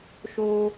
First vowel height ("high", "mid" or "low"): mid